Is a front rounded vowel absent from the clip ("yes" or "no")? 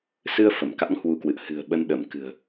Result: yes